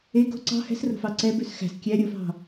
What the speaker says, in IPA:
e ɡ o̤ ǀ ɑ̤ h ɛ̤ s r o̤ f ɑ ǀ ɛ b ʉ s x æ̤ s kʲ æ ɾʲ o f ɑ̤

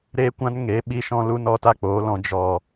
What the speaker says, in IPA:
ɾ eː˧ kʷ ã˧ n ŋ e˨˦ ɓ i˧ ʃ ɔ̃˧ l u˧ n ɔ˦ t a˦ k͡p oː˨˦ l ɔ̃˧ d͡ʒ ɔ˨

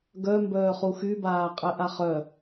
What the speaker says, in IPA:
ɡ œ m b œː χ u x y b aː qʼ ɛ ʔ a χ œ

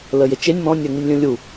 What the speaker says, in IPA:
l ə j e t͡ʃ e nʲ m ɔ̃ nʲ ɜ ŋ i nʲ lʲ ũ lʲ u

